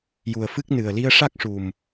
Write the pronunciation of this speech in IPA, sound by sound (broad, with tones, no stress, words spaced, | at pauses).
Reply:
ju˨˩ə̯fɨ˦˥k̚ nɨ˨˩ə̯li˧ə̯ʂa˦˥k̚ ʂu˨˩m